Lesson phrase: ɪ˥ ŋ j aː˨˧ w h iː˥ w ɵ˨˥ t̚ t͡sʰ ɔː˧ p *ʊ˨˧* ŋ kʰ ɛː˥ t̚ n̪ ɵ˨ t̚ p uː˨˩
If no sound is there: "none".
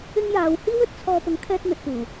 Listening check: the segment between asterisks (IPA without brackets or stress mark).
ʊ˨˥